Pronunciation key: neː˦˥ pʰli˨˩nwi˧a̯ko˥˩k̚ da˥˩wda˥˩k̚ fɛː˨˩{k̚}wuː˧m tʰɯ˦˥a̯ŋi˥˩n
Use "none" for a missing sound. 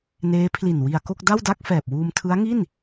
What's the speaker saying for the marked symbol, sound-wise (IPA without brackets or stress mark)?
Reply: p̚